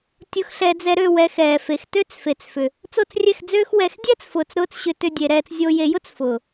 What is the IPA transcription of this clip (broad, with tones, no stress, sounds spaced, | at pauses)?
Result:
tʲ ʊ˧ x ɬ ɛ˧ d͡z ɛ˧ ɾ ø˦˨ w ɛ˧ x ɛː˨ f e˨ x t ø˦ t͡s f e˨ t͡s f ʏ˨ | t͡s o˦˨ t͡s rʲ ɛ˦˨ x d͡z øː˦ x w ɛ˧ x dʲ ɛː˦ t͡s f ʊː˨ t͡s ɾ ʊː˧ t͡s ɕ ʏ˧ t ʏ˧ dʲ e˨ ɾ ɛː˧ t͡s zʲ o˧ j e˧ j ʊ˦ t͡s f ʊː˨